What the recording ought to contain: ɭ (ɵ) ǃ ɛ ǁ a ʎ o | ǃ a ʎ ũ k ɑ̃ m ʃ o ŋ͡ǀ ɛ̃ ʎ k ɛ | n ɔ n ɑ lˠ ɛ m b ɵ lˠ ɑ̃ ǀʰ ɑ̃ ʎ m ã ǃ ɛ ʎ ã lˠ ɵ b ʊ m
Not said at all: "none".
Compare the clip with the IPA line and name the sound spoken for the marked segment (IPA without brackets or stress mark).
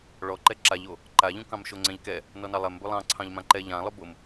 ɔ